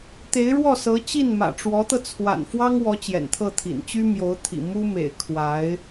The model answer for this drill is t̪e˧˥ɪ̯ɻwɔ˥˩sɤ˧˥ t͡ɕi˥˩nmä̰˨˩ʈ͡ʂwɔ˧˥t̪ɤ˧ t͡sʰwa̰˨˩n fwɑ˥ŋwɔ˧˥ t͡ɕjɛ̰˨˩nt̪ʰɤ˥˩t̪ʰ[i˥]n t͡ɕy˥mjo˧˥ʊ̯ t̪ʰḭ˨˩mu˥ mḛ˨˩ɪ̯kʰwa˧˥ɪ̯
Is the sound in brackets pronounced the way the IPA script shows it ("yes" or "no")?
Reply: no